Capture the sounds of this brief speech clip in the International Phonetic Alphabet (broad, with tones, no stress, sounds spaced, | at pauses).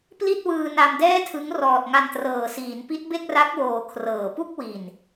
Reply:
p l i˥˩ t̚ w ɯː˧ n a˧ m d ɛː˥˩ tʰ ɯ˦˥ ŋ r ɔː˨˩ t̚ ŋ a˧ n t r ɤː˨˩ s iː˩˦ n p i˦˥ t̚ b e˥˩ k̚ r a˦˥ k̚ w oː˨˩ kʰ r ɤː˨˩ p u˥˩ k̚ w i˨˩ n